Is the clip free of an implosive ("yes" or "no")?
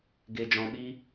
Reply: no